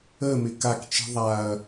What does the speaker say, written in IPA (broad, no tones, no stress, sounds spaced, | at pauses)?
ə m ɪ k a k t͡ʃ i̤ ðˤ a ɐ̯